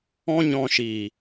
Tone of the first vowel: high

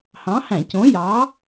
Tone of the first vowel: rising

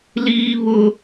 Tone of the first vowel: high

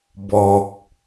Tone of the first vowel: low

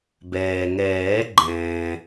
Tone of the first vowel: low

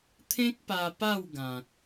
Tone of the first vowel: high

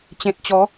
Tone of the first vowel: low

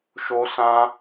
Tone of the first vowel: high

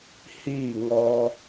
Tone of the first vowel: falling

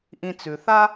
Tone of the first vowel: low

